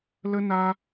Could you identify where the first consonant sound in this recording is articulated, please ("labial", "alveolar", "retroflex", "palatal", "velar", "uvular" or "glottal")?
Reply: alveolar